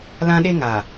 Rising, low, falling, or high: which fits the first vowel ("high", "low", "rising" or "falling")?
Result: high